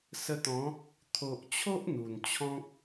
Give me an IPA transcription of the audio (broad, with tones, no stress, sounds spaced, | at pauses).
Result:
s ə˧ t̪ ɔ̃˨˦ | t̪ʰ o˨ ʔ t͡ɕʰ o˦ ʔ n̪ u˨˩ n t͡ɕʰ ɔ̃˦ k̚